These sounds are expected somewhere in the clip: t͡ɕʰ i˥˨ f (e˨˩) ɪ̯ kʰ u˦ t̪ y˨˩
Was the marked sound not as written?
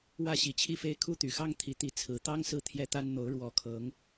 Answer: yes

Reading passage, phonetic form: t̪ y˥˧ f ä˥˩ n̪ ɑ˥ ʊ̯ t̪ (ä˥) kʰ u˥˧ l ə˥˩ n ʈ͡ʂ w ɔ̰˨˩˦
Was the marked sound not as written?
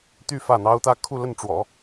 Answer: no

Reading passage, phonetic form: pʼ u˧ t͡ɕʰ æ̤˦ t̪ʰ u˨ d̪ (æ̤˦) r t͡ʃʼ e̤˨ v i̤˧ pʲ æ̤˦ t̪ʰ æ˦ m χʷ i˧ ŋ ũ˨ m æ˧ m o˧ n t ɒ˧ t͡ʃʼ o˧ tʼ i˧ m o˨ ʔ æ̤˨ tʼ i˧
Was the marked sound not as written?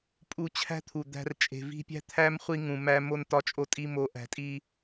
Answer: yes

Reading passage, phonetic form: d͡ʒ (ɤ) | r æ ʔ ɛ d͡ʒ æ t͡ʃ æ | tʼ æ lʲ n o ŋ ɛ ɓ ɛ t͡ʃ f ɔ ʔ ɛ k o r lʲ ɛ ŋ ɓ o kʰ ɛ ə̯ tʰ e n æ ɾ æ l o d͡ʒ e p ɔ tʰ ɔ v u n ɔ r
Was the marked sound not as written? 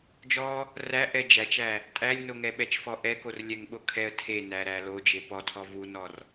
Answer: yes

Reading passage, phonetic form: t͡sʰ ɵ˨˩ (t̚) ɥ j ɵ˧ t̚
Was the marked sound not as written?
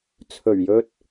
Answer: yes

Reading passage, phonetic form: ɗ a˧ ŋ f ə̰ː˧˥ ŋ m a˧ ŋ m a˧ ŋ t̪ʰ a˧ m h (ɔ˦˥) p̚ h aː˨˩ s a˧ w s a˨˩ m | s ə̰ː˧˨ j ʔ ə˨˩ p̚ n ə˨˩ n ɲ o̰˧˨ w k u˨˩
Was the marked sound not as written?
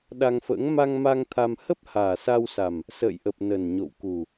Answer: yes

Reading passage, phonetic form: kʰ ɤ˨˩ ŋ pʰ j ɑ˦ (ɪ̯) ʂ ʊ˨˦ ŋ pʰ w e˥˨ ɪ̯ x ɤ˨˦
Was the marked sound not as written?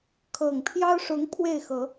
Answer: yes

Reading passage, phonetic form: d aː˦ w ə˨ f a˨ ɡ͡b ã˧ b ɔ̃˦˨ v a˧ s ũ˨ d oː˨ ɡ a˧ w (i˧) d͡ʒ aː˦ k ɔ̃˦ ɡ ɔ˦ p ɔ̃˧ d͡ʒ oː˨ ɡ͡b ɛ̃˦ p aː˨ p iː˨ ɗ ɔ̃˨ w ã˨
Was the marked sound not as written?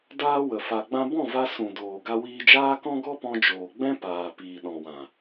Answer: yes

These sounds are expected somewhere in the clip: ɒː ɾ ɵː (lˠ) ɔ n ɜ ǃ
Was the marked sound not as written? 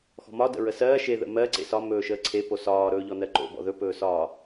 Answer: yes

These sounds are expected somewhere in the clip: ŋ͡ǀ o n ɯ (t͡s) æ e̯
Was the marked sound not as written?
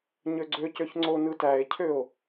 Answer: yes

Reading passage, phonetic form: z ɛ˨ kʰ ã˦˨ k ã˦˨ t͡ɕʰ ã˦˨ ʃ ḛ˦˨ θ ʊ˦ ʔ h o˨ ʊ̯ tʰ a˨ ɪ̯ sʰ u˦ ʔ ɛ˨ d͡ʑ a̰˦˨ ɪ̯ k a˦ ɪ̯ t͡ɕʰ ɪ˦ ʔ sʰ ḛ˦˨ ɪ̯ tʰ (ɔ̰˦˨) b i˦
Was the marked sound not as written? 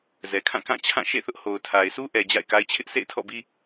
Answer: no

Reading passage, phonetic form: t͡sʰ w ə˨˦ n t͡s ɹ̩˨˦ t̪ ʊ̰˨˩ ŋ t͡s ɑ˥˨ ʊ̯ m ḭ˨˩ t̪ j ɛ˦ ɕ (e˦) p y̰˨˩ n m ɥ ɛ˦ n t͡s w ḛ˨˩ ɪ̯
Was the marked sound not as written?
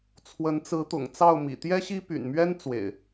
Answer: yes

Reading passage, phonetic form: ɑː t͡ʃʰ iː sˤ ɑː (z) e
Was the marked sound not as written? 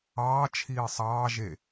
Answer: yes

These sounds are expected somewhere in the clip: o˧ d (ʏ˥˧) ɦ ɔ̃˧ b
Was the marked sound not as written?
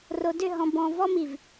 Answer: no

